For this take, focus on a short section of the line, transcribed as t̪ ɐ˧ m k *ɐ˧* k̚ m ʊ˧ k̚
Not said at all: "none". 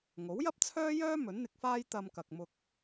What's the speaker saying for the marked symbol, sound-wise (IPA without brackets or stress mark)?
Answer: ɐ˨